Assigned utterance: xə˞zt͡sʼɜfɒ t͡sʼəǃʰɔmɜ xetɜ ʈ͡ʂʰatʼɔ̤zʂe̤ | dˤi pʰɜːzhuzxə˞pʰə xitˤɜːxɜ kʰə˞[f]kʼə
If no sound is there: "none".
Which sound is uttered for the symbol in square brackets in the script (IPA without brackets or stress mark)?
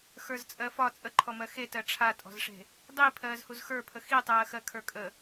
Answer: none